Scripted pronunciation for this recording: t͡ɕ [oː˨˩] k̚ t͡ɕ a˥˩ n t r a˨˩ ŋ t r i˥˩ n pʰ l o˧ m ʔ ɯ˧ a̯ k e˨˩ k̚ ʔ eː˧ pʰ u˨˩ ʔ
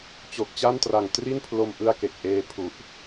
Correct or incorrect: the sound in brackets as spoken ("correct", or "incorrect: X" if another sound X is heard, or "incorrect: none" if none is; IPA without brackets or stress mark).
incorrect: o˨˩